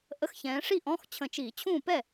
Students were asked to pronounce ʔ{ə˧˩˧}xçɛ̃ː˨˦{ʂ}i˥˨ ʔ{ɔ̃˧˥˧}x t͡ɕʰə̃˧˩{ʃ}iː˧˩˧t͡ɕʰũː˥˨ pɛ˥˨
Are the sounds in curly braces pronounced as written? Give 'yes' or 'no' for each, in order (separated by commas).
no, yes, yes, no